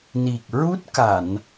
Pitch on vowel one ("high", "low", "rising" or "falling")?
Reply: low